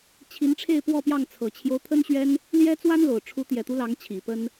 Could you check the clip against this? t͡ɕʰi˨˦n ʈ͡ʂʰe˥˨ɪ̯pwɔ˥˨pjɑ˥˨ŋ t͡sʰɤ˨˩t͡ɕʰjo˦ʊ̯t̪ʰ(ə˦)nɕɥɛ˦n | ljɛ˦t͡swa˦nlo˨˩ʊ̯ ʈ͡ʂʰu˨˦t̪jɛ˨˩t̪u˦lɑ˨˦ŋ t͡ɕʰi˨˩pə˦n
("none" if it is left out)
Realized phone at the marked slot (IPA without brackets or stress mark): ə˦